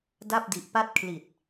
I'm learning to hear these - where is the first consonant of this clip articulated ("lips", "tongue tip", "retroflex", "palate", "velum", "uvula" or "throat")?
tongue tip